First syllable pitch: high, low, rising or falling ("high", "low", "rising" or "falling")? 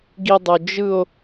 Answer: high